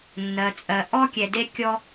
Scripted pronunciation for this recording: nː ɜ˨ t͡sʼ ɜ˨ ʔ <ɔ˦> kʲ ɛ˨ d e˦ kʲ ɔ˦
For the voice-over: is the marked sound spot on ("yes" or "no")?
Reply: yes